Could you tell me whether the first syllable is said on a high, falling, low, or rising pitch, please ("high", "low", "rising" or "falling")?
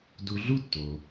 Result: low